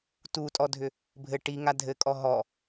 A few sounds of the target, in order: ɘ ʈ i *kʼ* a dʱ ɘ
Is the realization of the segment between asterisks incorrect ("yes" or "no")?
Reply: yes